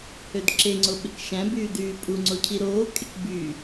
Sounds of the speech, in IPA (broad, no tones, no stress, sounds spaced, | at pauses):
h ø d ǁ e ŋ͡ǀ o ɓ e k ʃ æ̃ b yː d yː pʼ u ŋ͡ǀ o cʰ i ɾ oː kʼ e k b y